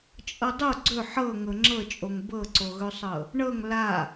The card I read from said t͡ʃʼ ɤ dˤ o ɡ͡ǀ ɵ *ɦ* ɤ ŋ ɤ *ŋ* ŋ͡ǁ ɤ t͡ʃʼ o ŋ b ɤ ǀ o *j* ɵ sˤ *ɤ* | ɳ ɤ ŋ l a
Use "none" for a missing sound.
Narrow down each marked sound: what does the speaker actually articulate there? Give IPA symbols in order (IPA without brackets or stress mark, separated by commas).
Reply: ħ, none, ɣ, ɤ